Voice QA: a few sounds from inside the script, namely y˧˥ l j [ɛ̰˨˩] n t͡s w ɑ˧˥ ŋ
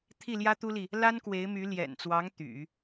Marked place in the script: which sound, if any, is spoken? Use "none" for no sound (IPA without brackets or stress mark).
ɛ̰˨˩